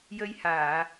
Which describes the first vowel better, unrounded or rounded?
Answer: unrounded